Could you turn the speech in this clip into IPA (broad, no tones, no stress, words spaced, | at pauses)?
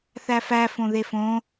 θæfæ fõðefõ